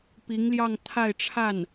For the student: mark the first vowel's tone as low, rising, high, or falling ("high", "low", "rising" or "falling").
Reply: rising